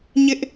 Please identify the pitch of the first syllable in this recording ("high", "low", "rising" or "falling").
high